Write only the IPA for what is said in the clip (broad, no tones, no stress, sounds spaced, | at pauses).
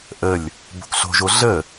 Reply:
ʔ ə lʲ | b o̤ k ɬ o̤ ʒ o ɮ ə